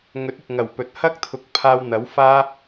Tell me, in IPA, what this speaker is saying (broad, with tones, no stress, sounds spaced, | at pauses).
ŋ ɵ˨˥ t̚ ɪ˨ k̚ ŋ ɐ˨˩ w p ɵ˨ t̚ h ɐ˥ k̚ t̪ʰ ʊ˨˥ k̚ pʰ aː˧ w n̪ ɐ˨˥ w f aː˥